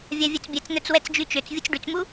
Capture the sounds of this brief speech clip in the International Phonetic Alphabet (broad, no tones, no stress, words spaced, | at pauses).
vʲavʲœt͡sbʲɛt͡sn̪œt͡s wɛt͡sd͡ʒyt͡ʃøt͡s vʲut͡sɖyt͡smu